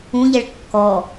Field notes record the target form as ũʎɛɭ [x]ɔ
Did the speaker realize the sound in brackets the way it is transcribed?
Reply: no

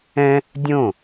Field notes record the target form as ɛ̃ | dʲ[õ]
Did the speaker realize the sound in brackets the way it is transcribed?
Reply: yes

